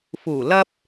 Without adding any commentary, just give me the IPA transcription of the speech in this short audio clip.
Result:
f uː˨˩ l ɐ˧ p̚

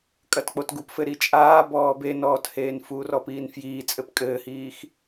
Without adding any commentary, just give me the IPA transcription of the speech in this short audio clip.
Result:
kʼ ɐ t k͡p o t ɡ u p f ɘ ɾ i t͡ʃʼ aː b ɔː b e n ɔː t h eː n f uː r ɔ p iː n f j iː t͡sʼ ɘ p kʼ ɘː h iː x

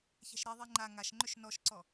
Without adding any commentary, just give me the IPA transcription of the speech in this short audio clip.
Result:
ç æ̤ ʃ ɾ i ðˤ i ŋ͡ǃ a ŋ a ʃ ŋ͡ǃ ʏ ʃ n ɔ ʃ ǀ ɔ

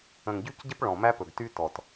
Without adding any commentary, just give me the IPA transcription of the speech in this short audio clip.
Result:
ə̃˨ ŋ ɟ y˦ c ɟ ə˦ p ɭ ɔ̃˨ m æ˦ p ɵ˨ ɡ t y˦ t ɔ˨ t

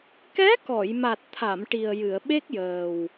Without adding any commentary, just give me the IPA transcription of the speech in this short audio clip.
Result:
k ɛ˧˥ k ɔ˨˩˨ j m a˨˩ t̚ t̪ʰ a˨˩˨ m ʈ i˨˩ ə̯ j ɨ˨˩˨ ə̯ ɓ e˦˥ k̚ j əː˨˩ w

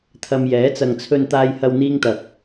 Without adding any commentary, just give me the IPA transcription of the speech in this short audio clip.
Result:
t̪ʰ ɐ˧ m j ɛː˨˥ t͡s ɐ˨ ŋ t͡sʰ ɵ˧ n t̪ aː˧ j h ɐ˧ w n̪ iː˥ ŋ t̪ ɐ˧ k̚

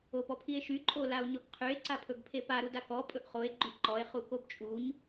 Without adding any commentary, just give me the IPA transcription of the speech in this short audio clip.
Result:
o p ɔ pʰ i e̯ ʃ y ǃʼ o l a o̯ ɲ ɔ ɡ qʰ y e̯ ǀ a pʰ ɵ ɡ pʰ e p a ɾ u d a k ɔ pʼ ɵ ʔ χ o e̯ ɡ͡ǃ y ʔ ǃ ɔ e̯ χ u k o b t͡ʃʼ u ɲ

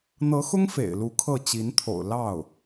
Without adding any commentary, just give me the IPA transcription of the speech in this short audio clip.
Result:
n̪ ɤ˧˥ x ʊ˥ ŋ f ḛ˨˩ ɪ̯ l u˧˥ kʰ ɤ˥˩ t͡ɕ i˧˥ n t̪ʰ o̰˨˩ ʊ̯ l ɑ˥˩ ʊ̯

